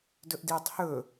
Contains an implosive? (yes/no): no